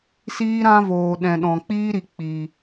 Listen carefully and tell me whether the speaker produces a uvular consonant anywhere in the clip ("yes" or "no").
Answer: no